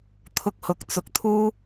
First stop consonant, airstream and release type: aspirated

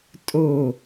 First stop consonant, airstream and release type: ejective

